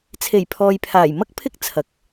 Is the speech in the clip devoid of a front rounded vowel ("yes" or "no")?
yes